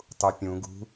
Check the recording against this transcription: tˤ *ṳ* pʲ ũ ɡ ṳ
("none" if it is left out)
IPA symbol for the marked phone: u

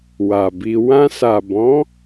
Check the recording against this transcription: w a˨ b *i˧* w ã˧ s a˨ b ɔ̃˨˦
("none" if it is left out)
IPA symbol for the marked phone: i˧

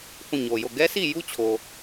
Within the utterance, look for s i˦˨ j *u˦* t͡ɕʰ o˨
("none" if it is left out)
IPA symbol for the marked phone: u˦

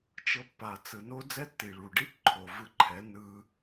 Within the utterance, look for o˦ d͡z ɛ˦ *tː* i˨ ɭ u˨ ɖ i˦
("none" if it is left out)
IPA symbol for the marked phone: tː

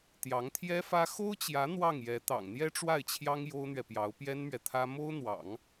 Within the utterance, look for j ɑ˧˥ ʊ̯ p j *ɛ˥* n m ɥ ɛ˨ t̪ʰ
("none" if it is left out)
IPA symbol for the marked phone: ɛ˥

